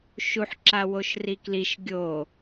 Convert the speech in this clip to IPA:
ʃ u ħ ǁ a w o ʃ r i k l i ʃ ɡʲ o

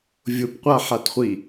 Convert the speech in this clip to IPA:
vʲ ʊ p qʷ a ħ a t χʷ i

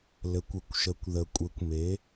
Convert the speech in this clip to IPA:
l ɘ˩˧ kʷ ɘ˩˧ kʷ ʃ ə˩˧ kʷ ð ə˩ kʷʼ ɘ˩˧ kʷ m e˩˧

